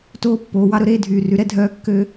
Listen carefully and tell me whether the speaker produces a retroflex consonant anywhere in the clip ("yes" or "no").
no